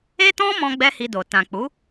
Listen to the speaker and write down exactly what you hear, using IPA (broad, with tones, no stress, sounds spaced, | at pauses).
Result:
e˦ t ɔ̃˦ m ɔ̃˦ ɡ͡b ɛ˦ h i˧ d o˨ t ã˨ k͡p u˨˦